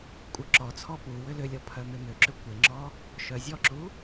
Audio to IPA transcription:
kʷʼ œ ǁ ɔ t͡sʰ ɔ p u w ʏ l ʏ lʲ ɔ pʰ œ m ɪ m ʏ ǁ ʏ kʷ ɪ ŋ͡ǁ ɔ | ʃ œ zʲ ɔ ǁ u

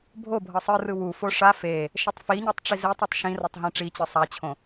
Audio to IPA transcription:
bʱ o bʱ ɤ sˤ ɯ r ɯ w u f o ʂ a f e | ʃ ɛ tˤ f i ɲ ɤ tˤ ʈ͡ʂ i z e tˤ ɛ tˤ ʃ ĩ r o tˤ ɦ ĩ ʈ͡ʂ i t͡ɕ ɯ sˤ a t͡ɕʰ õ

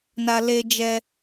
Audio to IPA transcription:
n a˦ l e˦ d͡ʒ ɛ˦

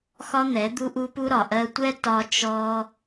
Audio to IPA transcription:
x ɒ˦ n̪ ɛ˨˦ d̪ u˦ ʔ u˦ p u˦ ɾ ɒ˨ ʔ ɜ˧ tʷ ɛ˦ t ɒ˦ t͡ʃ ɔ˦

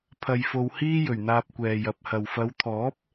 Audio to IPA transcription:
pʰ ɐ˧ j f o˧ w h iː˥ j ɵ˨˩ ɥ n̪ aː˧ p̚ kʷ ɛː˨ j ɐ˨˥ p̚ h ɐ˨ w f ɐ˨˧ w t̪ʰ ɔː˨˥ p̚

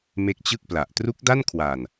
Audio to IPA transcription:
m e˦˥ k̚ t͡ɕ ɯ˥˩ k̚ p l a˨˩ ʔ t r u˦˥ k̚ d a˥˩ n kʰ w aː˨˩ n

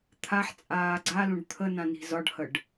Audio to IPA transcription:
t̪ʰ a ħ t͡sʼ aː ɡ͡ǀ a l ũ ɖ t̪ʰ ə n ã n i̤ z ɒ ɖ h ə ɖ

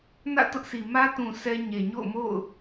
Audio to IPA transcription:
n ä̰˦˨ t ʊ˦ ʔ sʰ i˨ m ä˦ t ũ˨ s ɛ˦ ɲ e˨ ɲ o̰˦˨ ʊ̯ m o̰˦˨ ʊ̯

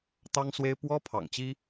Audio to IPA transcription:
t̪ ɑ˥ ŋ s w e˥ ɪ̯ p w ɔ˥ pʰ ɑ̰˨˩ ŋ t͡ɕ i˥

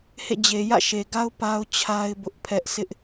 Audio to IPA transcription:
h ḛ˦˨ d͡ʑ e˨ j ä̰˦˨ ʃ e˨ ɡ a˦ ʊ̯ p a˦ ʊ̯ t͡ɕʰ a˦ ɪ̯ b ʊ˦ ʔ pʰ ɛ˦ ʔ sʰ ɪ˦ ʔ

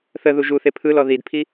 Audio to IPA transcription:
θ ə ð u ʒ u θ e pʰ ɯ l ɔ ð i d pʰ i

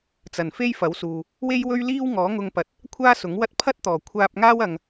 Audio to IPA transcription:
t͡s ɐ˨˩ n f e˥ j f ɐ˨˥ w s uː˨ | w e˥ j w ɵ˥ ɥ l iː˥ w ŋ ɔː˨˥ ŋ ʊ˧ ŋ p ɐ˨˥ t̚ | kʷʰ aː˥ s ʊ˨˥ ŋ w ɐ˥ t̚ pʰ ɐ˥ t̚ t̪ ɔː˨˩ kʷʰ aː˧ p̚ ŋ aː˥ w ɐ˧ ŋ

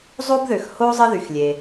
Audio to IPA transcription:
zˤ o˥ b ð ø˩ x h o˥ zˤ ə˥ ð y˩ x lʲ e˩

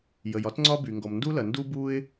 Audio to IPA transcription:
j ə˩ j ɒ˥ t ŋ͡ǀ ɒ˥ b y˩ ŋ ɡ ɔ˩ m n d u˥ l ɐ˩ n d u˥ b u˥ ɪ̯

